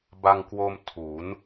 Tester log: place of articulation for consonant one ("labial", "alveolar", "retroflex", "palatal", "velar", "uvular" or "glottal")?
labial